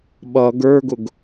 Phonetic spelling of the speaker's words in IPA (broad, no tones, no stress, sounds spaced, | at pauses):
ɓ ʌ ɡ ə˞ ɡ ʊ ɡ